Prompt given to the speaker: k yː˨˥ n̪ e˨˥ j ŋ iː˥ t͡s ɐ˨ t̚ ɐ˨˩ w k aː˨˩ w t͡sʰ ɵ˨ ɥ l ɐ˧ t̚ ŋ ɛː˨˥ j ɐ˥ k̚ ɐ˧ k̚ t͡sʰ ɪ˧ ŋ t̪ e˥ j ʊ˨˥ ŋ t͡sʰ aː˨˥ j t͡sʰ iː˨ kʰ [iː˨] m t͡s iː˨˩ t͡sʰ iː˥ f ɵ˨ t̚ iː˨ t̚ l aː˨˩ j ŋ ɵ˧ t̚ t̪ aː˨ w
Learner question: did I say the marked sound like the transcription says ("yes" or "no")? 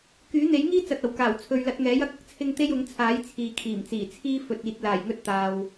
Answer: no